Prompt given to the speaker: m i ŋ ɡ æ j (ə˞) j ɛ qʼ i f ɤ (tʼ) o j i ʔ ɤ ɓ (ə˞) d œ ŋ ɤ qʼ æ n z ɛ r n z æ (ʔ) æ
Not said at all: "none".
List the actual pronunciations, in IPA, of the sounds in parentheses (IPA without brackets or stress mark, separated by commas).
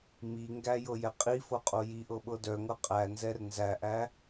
ɤ, qʼ, ɤ, ʔ